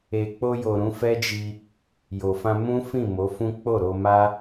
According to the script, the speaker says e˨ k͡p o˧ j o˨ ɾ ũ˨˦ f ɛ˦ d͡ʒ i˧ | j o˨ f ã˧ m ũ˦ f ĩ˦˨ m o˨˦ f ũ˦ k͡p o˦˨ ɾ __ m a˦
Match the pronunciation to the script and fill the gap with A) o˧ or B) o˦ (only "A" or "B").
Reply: A